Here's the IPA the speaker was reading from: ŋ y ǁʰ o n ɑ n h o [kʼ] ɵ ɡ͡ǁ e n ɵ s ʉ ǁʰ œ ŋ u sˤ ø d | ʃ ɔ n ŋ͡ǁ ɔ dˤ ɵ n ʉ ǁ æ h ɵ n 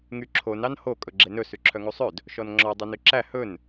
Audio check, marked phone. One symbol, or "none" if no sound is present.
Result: kʼ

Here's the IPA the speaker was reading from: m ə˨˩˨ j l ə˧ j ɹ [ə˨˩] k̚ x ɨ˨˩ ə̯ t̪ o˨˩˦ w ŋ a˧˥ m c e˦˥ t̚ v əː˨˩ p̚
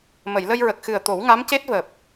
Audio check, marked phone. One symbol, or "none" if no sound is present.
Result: ə˨˩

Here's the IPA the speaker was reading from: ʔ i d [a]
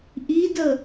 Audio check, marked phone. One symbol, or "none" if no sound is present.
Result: ə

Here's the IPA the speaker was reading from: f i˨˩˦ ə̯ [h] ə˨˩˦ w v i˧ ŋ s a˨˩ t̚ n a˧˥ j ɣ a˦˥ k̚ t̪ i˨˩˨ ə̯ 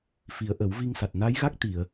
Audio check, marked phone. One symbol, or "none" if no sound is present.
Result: ʔ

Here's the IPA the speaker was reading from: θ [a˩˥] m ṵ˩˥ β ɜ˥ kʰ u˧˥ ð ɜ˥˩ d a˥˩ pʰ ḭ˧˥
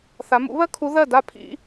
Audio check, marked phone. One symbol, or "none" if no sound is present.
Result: a˩˧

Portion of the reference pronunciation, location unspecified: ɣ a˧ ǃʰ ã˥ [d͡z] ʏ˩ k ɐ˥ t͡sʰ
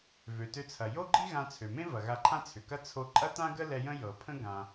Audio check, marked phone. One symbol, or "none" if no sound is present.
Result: t͡sʰ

